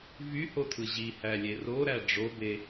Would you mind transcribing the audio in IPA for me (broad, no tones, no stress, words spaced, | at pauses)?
vyhotʰɯ ʑihælʲe roɾæ ɖ͡ʐobe